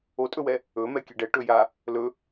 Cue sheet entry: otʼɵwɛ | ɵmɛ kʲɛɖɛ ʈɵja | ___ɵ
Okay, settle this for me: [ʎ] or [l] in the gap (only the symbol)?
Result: l